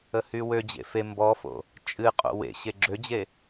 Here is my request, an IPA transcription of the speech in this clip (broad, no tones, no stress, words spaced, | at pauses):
əhywød͡ʑḛ fe mbɔfo̰ | t͡ʃʼɨqʼo̰ wḛ ɕeɡ͡ǁød͡ʑe